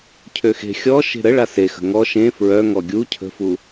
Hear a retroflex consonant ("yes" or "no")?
yes